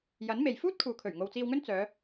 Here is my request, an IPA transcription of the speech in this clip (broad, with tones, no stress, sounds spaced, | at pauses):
j ɐ˨˥ n m e˨ j f uː˥ t̚ kʰ uː˨ kʰ ɵ˨˩ ɥ ŋ o˨ w t͡s iː˧ w ŋ ɵ˥ n t͡s œː˨˧